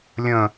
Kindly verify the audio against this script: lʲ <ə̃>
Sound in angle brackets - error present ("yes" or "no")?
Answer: no